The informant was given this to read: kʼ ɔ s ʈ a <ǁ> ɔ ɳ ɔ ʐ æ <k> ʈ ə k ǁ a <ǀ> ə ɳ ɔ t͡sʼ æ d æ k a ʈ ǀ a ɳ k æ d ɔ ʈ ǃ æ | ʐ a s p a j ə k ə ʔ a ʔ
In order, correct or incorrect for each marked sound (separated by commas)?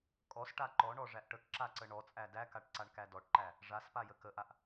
incorrect, incorrect, correct